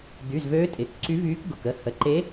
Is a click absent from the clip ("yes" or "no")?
no